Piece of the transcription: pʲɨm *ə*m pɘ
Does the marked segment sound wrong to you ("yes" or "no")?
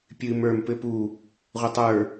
yes